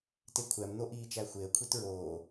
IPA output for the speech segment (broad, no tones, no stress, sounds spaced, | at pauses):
t e kʷʰ æ m n̪ o ʔ iː t͡ʃ æ xʷ e ə̯ kʷʰ i t ɹ oː